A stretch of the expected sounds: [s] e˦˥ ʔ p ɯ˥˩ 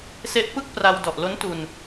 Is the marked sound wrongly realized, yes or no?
no